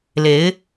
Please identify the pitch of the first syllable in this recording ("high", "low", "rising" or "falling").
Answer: rising